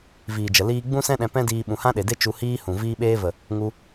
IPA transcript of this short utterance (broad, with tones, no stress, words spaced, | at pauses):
viː˨d͡ʒə˨ liː˧ ɡ͡bũ˦sɛ̃˦ɗɛ̃˧ pɛ̃˦diː˧ ɓũ˨hã˦ɗe˨de˦ t͡ʃu˧hiː˦hũ˨ viː˧ɓeː˧və˨ | ŋu˧